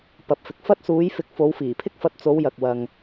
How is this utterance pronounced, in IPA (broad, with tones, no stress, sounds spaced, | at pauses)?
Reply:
p ɐ˧ p̚ f ɪ˨˥ k̚ f ɐ˥ t̚ s uː˨˧ j f ɪ˨˥ k̚ f o˨˧ w f iː˨˩ pʰ ɪ˥ k̚ f ɐ˧ t̚ t͡s o˨˧ w j ɐ˨ k̚ w ɐ˨ ŋ